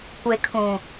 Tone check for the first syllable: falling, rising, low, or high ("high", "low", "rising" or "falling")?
low